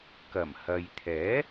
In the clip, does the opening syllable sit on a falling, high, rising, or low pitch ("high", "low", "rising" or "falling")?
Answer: low